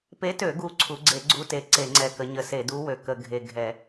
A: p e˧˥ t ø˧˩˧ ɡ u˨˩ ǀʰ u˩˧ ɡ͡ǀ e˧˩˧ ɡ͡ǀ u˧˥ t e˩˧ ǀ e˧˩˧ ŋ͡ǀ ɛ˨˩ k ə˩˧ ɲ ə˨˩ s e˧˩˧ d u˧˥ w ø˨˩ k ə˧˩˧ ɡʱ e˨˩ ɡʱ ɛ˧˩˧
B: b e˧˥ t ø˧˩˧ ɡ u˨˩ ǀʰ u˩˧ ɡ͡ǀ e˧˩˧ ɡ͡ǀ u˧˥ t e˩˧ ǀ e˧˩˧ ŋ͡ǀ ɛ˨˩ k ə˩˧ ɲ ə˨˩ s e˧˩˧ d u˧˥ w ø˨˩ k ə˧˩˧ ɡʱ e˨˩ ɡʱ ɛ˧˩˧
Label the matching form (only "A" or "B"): A